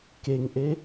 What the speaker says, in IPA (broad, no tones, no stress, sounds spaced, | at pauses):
k e ŋ ʔ e